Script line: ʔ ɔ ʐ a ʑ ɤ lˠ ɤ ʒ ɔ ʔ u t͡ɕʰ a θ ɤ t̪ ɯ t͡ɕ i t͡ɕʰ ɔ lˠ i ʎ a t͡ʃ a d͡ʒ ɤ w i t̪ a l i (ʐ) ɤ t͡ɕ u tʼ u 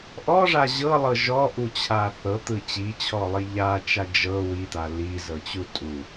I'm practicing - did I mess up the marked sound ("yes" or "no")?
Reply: yes